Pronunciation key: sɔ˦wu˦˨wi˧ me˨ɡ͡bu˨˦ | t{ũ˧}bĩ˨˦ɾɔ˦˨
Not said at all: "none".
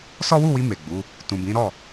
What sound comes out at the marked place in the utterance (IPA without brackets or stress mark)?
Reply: ũ˨